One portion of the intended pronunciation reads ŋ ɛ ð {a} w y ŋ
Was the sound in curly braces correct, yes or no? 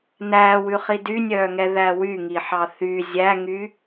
no